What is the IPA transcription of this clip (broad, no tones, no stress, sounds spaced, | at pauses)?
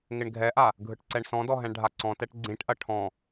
ŋ ɪ ɳ ɡʱ ɛ ʔ a | ɡʱ ɯ ʈ ǀ ɛ ɳ s ɔ̃ d ɔ ɦ ɛ̃ ɳ ɖʱ a ǀ ɔ̃ t ɛ ʈ ɡ͡ǀ ĩ ʈ ʔ ɐ ʈʰ ɔ̃